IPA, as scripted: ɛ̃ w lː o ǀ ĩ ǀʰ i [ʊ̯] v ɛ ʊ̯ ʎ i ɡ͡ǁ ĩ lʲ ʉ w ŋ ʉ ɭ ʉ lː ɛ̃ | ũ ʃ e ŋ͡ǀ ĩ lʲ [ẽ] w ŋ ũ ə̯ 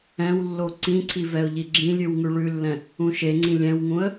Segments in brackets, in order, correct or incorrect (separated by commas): incorrect, incorrect